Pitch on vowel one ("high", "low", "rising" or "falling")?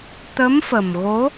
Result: rising